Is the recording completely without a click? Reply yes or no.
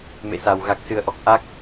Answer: yes